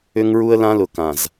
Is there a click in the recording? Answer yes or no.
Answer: no